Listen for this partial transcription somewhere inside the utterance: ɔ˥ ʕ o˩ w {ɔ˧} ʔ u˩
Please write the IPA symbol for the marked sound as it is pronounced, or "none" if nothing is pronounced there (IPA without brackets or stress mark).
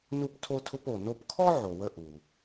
ə˧